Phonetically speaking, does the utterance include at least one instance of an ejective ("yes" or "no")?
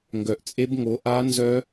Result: yes